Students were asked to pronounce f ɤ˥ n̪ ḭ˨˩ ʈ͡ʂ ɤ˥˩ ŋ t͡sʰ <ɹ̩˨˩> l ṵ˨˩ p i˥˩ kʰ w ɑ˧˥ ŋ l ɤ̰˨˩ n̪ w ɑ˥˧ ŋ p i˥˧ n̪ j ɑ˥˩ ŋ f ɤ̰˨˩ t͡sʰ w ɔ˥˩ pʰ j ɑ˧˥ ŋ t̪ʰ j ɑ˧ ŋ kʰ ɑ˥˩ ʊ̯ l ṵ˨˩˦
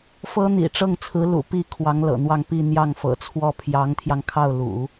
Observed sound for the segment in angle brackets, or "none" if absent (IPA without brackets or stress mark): ɹ̩˧˥